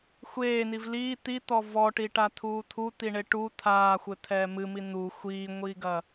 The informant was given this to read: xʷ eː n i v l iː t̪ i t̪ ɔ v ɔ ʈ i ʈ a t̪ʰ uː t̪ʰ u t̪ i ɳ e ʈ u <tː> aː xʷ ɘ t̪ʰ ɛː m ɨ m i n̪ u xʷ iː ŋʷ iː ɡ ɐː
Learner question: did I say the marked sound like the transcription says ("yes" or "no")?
no